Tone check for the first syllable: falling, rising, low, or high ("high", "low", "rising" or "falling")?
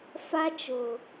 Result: high